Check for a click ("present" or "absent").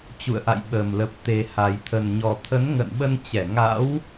absent